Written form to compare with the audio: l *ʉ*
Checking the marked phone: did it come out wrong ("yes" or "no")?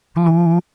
yes